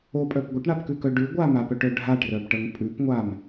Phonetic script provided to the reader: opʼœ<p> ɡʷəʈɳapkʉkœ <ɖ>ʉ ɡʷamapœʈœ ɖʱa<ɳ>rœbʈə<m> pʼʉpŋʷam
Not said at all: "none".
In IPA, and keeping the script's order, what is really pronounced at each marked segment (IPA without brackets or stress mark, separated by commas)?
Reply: p, ɖ, ʈ, ŋ